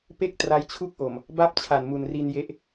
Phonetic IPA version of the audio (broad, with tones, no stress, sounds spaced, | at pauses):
p e˦˥ k̚ t r a˦˥ j t͡ɕʰ u˥˩ k̚ ʔ o˨˩ m | b a˥˩ p̚ t͡ɕʰ a˨˩ n m u˨˩ n r i˧ n j e˦˥ ʔ